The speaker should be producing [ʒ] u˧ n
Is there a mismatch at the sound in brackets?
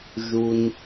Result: no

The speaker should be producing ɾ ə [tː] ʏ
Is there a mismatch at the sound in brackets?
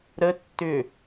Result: no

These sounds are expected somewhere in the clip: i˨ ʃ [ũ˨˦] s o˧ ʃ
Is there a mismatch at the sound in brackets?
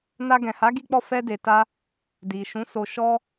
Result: no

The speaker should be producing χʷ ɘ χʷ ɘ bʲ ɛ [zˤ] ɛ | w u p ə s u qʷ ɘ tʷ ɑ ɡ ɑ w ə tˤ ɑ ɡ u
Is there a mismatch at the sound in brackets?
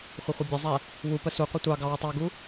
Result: no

